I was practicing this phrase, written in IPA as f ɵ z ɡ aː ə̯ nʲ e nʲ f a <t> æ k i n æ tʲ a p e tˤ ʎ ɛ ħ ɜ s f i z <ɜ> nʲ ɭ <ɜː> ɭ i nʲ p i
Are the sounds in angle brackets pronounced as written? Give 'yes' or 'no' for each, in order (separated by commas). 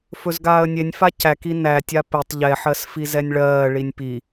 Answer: no, no, yes